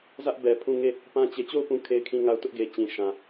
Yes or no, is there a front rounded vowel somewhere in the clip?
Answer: no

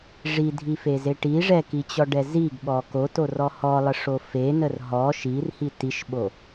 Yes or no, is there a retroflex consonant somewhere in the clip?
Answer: yes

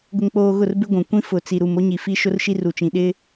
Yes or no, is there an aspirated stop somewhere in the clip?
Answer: no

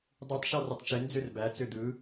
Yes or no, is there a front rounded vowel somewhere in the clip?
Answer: yes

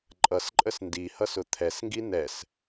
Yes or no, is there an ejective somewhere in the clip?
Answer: yes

